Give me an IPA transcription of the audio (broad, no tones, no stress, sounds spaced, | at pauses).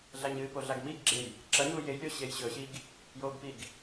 ɮ a ɲ ɨ p o ɮ a ɡ m i ɡ ɡ͡ǁ e j | ǁ ɐ ɲ u j e j lʲ o ɕ e j ɕ ɵ ɕ i ɡ | j o ɡ p i ɡ